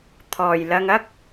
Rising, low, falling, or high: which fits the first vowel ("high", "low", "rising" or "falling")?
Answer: low